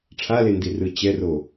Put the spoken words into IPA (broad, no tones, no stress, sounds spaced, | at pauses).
ʈ͡ʂʰ a l e n d i r ɯ t͡ɕ ɛ r o